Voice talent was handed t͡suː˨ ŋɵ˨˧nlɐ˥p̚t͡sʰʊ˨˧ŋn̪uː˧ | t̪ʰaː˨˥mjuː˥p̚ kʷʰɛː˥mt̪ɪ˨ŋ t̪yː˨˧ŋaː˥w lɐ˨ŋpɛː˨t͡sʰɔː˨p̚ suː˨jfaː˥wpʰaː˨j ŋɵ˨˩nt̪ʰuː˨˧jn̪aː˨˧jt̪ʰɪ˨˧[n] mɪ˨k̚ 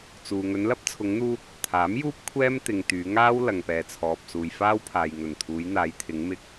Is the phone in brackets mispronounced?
yes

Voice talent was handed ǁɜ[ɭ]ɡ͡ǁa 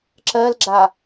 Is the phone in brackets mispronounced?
yes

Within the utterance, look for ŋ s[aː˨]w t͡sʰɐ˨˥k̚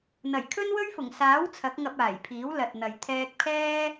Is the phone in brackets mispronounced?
yes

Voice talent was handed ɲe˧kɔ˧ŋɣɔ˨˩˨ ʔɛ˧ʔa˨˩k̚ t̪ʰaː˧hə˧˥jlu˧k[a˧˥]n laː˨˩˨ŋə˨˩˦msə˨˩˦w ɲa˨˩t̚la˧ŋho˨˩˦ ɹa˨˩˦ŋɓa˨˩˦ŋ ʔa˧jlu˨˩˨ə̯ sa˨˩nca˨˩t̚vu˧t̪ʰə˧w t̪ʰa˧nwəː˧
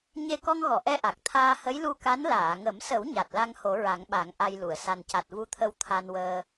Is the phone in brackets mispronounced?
no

